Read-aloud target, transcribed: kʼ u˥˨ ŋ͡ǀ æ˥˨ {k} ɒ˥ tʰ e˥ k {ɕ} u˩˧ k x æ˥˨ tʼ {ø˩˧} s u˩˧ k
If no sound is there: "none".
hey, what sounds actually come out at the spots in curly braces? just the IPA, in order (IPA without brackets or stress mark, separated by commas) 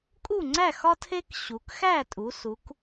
x, ɕ, u˩˧